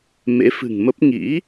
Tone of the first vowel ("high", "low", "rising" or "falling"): rising